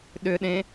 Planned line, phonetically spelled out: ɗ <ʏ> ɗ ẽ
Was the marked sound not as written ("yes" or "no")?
no